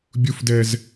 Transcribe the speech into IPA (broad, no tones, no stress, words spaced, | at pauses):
bʲufdɛz